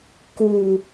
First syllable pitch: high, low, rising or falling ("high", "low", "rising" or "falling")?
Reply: low